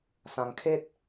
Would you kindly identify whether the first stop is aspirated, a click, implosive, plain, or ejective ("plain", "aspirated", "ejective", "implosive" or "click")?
aspirated